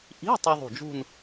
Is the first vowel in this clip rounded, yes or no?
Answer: no